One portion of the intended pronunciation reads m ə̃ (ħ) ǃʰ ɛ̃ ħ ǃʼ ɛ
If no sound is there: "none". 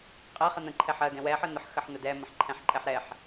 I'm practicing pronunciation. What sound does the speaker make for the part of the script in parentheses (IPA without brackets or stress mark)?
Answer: ħ